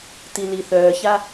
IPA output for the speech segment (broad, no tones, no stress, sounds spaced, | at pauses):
t i l i θ œː ç a